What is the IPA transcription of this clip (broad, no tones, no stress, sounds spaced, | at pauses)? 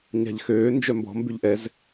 ɲ a̤ ʎ x øː n d͡ʒ œ m b ɔ̤ m b y ʎ ʔ ɛ z